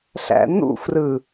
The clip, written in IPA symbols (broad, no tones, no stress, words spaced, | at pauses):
ɬæ̰n̪ṵfrɯ